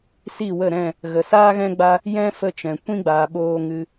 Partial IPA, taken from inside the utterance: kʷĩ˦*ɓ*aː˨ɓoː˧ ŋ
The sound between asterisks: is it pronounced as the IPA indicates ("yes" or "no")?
no